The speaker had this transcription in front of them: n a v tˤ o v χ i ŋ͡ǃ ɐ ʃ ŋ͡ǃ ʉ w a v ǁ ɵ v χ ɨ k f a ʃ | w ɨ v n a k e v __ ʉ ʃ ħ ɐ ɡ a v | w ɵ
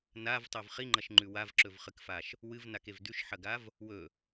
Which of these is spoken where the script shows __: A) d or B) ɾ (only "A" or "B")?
A